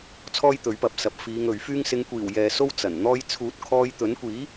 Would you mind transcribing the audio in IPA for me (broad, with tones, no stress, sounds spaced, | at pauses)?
t͡sʰ ɔː˥ j t̪ ɵ˨˥ ɥ p ɐ˨˥ p̚ s ɐ˨˥ p̚ f iː˨˧ ŋ ɵ˨ ɥ f yː˥ ŋ s ɪ˨˧ ŋ kʷ iː˨˩ w j ɛː˧ s o˥ w t͡s ɐ˨˩ n n̪ ɔː˧ j t͡sʰ uː˨˥ t̚ kʰ ɔː˧ j t̪ ɵ˨˥ n kʷ iː˨˥